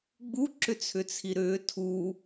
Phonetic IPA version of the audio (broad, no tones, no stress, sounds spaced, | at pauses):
ɡ͡b u ǁ ʏ t͡sʰ ʏ t͡sʰ i ɾ ʏː tʰ u